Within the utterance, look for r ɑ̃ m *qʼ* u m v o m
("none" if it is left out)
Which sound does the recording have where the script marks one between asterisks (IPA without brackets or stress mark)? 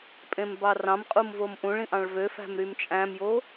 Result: qʼ